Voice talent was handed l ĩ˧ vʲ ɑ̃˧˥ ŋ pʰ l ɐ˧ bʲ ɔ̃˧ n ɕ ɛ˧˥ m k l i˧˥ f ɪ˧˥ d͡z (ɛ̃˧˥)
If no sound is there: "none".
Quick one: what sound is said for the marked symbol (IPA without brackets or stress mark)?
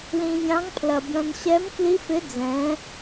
ɛ̃˧˥